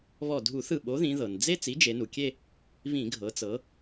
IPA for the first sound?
β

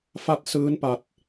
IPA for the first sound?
f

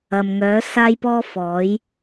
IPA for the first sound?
ɐ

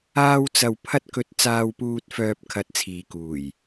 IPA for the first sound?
aː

